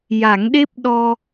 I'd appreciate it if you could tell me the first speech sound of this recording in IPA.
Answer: j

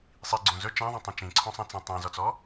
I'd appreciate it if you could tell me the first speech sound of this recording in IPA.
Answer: sˤ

